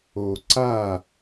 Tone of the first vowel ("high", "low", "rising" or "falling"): low